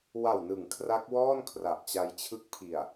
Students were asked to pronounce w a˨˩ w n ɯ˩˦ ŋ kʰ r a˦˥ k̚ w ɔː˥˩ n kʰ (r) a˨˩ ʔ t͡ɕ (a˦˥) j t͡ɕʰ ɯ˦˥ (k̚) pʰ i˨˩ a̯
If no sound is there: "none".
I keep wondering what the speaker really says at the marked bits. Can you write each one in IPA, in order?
r, a˧, k̚

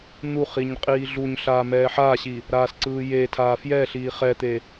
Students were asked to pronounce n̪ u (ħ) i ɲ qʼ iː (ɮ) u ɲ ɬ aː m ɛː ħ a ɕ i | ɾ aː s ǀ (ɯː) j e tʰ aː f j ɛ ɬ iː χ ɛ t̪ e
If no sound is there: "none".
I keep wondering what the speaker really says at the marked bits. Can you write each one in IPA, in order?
χ, ɮ, ɯː

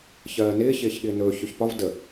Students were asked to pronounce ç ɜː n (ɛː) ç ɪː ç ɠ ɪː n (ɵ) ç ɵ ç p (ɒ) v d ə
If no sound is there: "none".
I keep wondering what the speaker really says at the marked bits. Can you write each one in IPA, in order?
ɪː, ɵː, ɒ

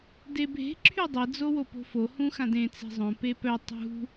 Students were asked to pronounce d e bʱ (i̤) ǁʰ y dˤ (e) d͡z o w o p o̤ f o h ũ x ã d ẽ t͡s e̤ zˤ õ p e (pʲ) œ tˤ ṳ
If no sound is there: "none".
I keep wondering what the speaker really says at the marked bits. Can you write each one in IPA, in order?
e̤, e, p

